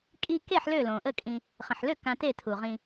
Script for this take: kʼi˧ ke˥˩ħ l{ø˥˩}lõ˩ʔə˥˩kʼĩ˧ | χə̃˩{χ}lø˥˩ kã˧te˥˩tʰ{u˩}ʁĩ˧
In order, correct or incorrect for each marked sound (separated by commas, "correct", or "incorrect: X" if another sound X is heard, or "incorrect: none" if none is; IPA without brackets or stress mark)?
correct, incorrect: ħ, correct